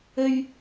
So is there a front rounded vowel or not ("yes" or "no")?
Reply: no